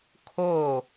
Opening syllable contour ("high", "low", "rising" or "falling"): falling